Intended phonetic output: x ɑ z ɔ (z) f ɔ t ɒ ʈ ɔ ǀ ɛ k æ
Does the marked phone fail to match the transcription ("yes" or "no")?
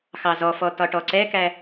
yes